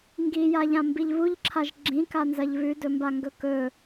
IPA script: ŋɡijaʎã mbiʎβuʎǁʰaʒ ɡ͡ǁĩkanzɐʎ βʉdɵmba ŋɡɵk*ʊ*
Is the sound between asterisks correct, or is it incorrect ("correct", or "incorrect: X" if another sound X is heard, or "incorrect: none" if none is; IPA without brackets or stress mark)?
incorrect: ɵ